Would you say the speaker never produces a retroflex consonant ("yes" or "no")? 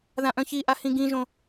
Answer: yes